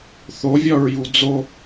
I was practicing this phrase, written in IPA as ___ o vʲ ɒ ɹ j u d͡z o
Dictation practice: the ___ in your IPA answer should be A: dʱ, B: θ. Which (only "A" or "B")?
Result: B